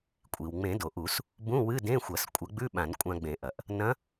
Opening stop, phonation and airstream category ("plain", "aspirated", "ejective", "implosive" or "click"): ejective